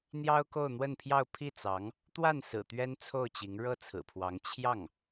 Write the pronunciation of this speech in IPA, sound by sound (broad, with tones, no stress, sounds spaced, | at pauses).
n̪ j ɑ˥ ʊ̯ k o˥˧ ʊ̯ n̪ w ə˥˧ n pʰ j ɑ˥˧ ʊ̯ pʰ i˥˩ t͡s ɑ˧˥ ŋ | t̪ w a˥˩ n s ɹ̩˨˩ t̪ ɥ ɛ˥ n t͡sʰ o˥˩ ʊ̯ t͡ɕ i˧˥ ŋ ɻ ɤ˥˩ t͡sʰ ɹ̩˨˩ pʰ w ɑ˧˥ ŋ t͡ɕʰ j ɑ˥˩ ŋ